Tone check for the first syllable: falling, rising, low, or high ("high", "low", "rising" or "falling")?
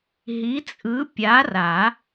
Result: rising